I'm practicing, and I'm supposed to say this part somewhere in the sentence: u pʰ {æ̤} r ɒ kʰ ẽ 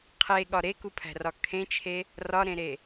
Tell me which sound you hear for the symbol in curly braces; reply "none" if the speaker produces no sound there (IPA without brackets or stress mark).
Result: æ̤